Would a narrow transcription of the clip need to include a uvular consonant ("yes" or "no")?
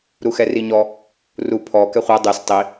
yes